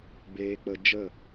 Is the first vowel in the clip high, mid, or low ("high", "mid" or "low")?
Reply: mid